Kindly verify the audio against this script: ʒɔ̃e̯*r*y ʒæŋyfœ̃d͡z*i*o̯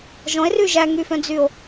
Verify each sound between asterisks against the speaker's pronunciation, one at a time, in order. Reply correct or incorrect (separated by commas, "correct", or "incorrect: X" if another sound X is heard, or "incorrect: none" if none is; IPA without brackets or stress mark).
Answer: correct, incorrect: y